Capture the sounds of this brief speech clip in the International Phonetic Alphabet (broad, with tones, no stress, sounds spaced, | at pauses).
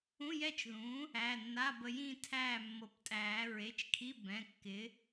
ũ˧˥˧ j ɛ˥˨ t͡ʃ ð ũː˩˥ | æ˩˧˩ nː a˧˥˧ b ə˧ j ĩː˥˨ tʰ æː˥˨ mː ɤ˨˩˦ p tʼ æː˨˩˦ ɹ e˩˧˩ t͡ʃ kʰ i˧˥˧ b ɛ̃˩˧˩ kː ɪː˩˥